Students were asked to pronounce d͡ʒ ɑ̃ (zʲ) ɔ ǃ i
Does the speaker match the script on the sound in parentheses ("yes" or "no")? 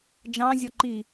yes